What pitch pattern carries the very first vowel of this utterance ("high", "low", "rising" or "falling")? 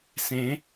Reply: rising